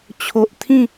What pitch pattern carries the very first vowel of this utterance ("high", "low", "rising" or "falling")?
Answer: low